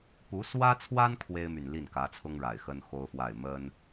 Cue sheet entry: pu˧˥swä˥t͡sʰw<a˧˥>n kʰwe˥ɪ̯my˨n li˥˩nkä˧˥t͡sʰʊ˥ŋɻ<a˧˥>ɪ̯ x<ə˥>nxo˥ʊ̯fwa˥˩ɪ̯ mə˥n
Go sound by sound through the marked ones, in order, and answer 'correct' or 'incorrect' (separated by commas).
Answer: incorrect, incorrect, correct